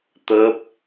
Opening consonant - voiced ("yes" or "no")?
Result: no